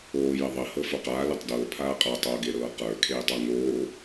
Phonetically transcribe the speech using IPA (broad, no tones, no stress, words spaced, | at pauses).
oː jɘðˤɘ hɤfoqaː letˤdɤː pʰaːqʼa tˤoːɡeɾɤːqə˞ kʰeːtˤə˞ŋoː